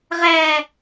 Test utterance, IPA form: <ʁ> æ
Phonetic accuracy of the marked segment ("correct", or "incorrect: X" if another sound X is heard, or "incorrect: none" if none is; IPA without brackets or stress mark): correct